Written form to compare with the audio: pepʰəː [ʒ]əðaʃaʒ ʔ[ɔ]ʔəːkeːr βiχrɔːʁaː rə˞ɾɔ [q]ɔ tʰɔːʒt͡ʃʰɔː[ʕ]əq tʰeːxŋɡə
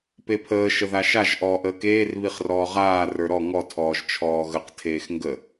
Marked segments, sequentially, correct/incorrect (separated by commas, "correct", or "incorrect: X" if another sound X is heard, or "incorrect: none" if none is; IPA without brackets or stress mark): incorrect: ʃ, incorrect: ɔː, incorrect: ŋ, incorrect: ɣ